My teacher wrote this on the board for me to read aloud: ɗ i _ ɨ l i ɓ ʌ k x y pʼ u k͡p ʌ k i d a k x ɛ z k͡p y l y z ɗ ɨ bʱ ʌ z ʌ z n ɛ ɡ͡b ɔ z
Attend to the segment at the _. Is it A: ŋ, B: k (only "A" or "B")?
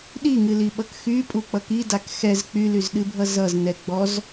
A